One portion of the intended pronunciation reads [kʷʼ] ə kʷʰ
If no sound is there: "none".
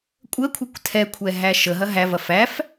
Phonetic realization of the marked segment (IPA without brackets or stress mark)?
kʷʼ